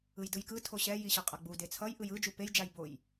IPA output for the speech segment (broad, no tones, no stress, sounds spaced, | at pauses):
ɯ j d ɯ j k ɯ tʰ o ɕ ɛ j i ɕ ʌ qʼ ʌ ɡ͡b u d e t͡sʰ ʌ j ʔ ɯ j ɯ d͡ʒ u p e j d͡ʒ a j b o j